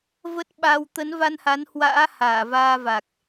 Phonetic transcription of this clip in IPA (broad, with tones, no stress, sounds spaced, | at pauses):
v ə˦˥ t̚ ɓ a˧ w t̪ ə˨˦ n v a˧ n h a˨˦ n h w a̰ː˧˥ h aː˧˩ v aː˧ v a˨˩ k̚